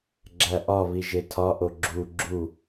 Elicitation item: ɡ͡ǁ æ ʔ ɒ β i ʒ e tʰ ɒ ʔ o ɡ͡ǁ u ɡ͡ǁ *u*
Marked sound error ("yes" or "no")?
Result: no